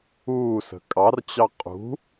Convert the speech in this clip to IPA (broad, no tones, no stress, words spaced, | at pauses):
uːsə̤ kʼɑrt͡ɕɑ qʼṳ